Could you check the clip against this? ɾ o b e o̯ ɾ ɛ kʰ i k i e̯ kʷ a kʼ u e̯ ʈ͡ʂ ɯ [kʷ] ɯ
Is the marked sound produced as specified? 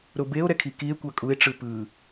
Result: no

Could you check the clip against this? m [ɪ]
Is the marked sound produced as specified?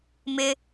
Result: yes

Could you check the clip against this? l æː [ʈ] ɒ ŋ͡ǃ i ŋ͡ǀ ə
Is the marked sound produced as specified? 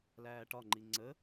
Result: yes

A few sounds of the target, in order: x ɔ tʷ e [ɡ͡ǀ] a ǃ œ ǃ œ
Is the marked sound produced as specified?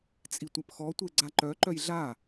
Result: yes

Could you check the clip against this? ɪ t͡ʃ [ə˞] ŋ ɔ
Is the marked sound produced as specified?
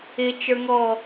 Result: yes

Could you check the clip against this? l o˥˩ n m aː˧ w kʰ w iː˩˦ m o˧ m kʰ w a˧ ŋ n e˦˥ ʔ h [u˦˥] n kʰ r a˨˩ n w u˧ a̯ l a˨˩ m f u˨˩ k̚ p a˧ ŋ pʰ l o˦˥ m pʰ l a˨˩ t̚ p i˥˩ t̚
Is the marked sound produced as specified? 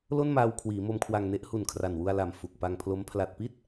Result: no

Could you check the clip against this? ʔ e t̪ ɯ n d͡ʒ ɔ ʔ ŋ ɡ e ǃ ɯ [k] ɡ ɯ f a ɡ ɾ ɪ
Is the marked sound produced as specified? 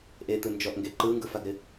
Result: no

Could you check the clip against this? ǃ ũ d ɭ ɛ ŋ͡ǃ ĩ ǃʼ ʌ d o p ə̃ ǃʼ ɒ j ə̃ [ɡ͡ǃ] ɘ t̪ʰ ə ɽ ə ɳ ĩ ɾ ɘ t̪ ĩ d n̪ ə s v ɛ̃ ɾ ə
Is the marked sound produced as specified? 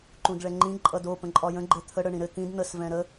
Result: yes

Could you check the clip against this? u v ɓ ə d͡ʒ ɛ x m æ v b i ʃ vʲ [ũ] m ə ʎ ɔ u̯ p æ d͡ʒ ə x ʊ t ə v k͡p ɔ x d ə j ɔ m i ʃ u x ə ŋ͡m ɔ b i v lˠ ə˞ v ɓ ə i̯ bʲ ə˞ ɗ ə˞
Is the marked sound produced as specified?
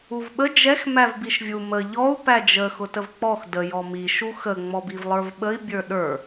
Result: no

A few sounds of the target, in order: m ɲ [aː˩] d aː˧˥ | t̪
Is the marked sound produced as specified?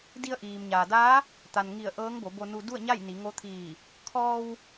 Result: yes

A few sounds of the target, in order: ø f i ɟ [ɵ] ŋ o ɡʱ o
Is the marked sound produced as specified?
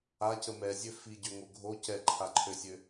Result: no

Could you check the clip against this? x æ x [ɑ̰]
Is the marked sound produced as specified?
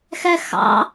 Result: yes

